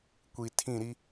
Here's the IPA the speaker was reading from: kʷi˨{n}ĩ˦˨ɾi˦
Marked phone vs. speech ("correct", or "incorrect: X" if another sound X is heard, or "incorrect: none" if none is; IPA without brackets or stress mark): incorrect: tʰ